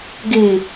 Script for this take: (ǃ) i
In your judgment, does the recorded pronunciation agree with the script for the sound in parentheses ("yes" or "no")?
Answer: no